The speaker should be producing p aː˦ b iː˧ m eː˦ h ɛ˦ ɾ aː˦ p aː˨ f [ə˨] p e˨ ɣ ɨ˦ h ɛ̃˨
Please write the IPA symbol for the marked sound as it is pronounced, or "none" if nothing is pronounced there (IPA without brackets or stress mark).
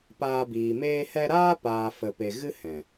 ə˨